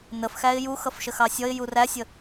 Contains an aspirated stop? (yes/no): no